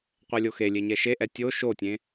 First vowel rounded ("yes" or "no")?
no